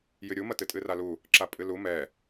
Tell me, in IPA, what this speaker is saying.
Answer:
jɨɾʲumɐ tɨtʼɨralu | ǁapʼɨlu mɛ

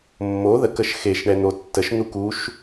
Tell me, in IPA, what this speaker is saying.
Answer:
mːo ðəkəʃ xeʃ ɳɛn̪otːəʃ n̪ukuʃ

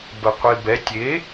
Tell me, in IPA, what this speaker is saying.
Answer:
bəqʷibɛ tʲe

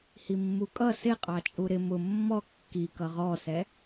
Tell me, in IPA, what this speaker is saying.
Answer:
himːukʼʌ sɪqʼɑt͡ʃʼu ɾɪ mʊ mːɔ kːi kʌʁɔsɛ

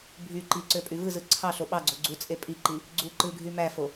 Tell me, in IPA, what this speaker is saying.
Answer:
bʱy ǃiǀø pʼyvɯzɯ ǀʰɑɬo ɓɑɡ͡ǀo ɡ͡ǀut͡sʼe pʼiǃi | ɡ͡ǀu ǃɯ ɡʱymæfo

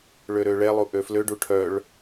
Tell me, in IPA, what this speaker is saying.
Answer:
ɭøɾøɭɛlˠu ʔøfløɖu ʈʰœɭ

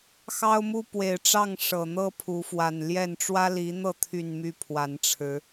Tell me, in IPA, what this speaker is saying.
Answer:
xɑ˦ʊ̯mu˦pwe˨˩ɪ̯ʈ͡ʂɑ˥˨ŋ ʂɤ˨˩n̪ɤ˦ pʰu˨˦fwa˨˩nljɛ˥˨n ʈ͡ʂwä˦li˨˦n̪ɤ˥˨ t̪ʰy˥˨nmy˦pʰwa˨˦nʈ͡ʂʰɻ̩˨˦

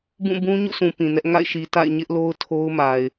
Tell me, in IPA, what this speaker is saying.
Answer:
bũ˦˨ bũ˦ ɲṵ˦˨sʰũ˨ pĩ˨nɛ˦ʔ ŋa̰˦˨ɪ̯ʃi˨ta̰˦˨ɪ̯ ɲɪ˦ʔlo˦ʊ̯ tʰo˦ʊ̯ma˨ɪ̯

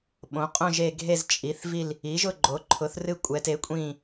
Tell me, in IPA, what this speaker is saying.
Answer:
ɓõ˩˥qʼõ˦˨ʒe˦˨ ɡʱe˦˨zt͡ʃʼi˩˥θvi˦˨l | i˩˥ʒʊ˦˨ɡ͡ǃo˩˥ǃʰʊ˩˥θ rɨ˦˨kʷʼɛ˩˥te˩˥kʷʼĩ˦˨

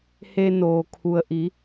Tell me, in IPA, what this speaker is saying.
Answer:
he˧ noː˩kʰu˩ə̯ʔi˩˧

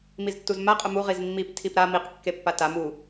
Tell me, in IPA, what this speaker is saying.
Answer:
miztːuzma qʼʊmu ʁizmːip tʰipɾa miq kːepːatam u

